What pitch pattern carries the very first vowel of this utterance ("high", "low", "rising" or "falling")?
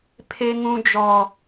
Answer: high